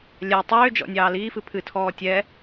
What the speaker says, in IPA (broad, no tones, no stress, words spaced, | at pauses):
lʲɛ tˤʏː d͡ʒɔ̰nʲɑːliːf ɨpʰɨtʰɔː tʲɛ